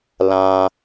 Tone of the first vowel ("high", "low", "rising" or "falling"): low